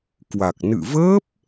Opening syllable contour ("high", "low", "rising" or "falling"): low